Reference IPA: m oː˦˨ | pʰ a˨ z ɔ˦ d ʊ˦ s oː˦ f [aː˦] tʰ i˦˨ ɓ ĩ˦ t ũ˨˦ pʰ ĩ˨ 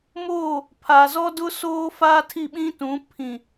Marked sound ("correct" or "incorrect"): correct